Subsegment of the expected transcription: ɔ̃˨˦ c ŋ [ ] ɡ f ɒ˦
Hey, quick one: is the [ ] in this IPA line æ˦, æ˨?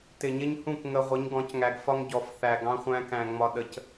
æ˨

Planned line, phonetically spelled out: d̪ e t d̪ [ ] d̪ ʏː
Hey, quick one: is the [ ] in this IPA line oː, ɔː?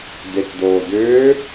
oː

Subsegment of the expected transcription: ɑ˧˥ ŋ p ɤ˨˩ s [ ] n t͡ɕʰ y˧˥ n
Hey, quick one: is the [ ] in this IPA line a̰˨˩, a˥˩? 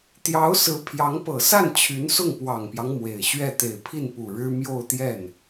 a˥˩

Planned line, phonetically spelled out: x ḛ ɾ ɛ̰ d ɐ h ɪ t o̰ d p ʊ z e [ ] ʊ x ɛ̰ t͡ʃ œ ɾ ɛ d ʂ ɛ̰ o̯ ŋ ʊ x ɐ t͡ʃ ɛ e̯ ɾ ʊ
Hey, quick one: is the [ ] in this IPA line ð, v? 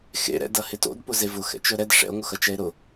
v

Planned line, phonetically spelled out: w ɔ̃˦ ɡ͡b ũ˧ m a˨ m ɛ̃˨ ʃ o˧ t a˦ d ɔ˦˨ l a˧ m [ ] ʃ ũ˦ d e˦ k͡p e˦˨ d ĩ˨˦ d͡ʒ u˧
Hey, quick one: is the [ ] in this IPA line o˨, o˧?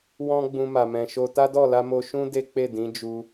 o˧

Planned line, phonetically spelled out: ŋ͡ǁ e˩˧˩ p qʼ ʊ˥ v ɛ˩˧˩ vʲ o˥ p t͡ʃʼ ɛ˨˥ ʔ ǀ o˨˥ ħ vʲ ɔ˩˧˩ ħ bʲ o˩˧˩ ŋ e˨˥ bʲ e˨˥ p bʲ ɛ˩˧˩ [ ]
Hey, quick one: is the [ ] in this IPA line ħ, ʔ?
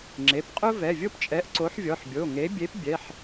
ħ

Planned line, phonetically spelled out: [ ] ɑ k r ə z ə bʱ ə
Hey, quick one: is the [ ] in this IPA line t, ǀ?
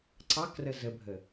ǀ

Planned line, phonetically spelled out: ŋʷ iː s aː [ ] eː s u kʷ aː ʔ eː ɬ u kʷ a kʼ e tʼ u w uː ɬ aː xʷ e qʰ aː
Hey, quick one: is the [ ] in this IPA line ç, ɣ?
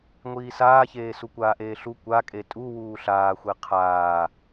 ç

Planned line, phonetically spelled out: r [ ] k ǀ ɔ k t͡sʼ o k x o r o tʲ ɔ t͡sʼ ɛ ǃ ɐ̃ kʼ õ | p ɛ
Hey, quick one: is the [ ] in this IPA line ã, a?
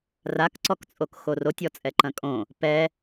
a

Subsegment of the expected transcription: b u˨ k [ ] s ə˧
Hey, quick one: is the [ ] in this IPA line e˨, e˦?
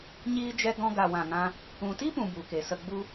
e˨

